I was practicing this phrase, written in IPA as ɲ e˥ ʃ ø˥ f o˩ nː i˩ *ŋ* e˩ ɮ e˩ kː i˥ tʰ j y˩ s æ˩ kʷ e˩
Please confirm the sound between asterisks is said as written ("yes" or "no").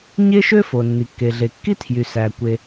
no